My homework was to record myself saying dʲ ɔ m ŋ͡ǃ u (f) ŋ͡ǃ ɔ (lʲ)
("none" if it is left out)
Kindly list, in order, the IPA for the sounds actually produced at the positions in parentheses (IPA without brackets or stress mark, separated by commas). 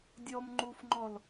f, l